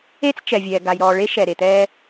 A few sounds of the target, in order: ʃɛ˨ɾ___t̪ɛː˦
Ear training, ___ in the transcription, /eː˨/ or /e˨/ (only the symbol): e˨